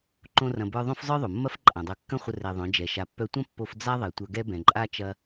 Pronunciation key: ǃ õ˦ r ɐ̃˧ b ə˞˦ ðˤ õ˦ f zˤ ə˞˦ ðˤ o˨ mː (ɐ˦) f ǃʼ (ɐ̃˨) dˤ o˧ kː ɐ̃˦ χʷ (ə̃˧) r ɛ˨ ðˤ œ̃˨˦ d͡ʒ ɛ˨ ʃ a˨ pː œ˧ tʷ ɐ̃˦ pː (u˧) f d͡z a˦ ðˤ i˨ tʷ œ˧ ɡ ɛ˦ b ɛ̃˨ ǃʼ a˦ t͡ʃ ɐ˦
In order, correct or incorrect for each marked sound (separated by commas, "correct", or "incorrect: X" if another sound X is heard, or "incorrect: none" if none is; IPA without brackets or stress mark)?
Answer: correct, incorrect: ã˨, incorrect: ə˧, incorrect: o˧